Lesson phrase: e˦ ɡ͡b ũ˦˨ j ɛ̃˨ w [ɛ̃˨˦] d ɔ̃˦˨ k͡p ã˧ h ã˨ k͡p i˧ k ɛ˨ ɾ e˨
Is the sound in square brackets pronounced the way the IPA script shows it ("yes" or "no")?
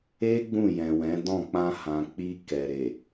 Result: yes